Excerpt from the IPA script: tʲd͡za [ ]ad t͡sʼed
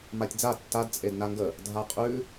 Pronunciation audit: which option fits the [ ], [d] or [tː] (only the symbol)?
tː